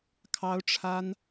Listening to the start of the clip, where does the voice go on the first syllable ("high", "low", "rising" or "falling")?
high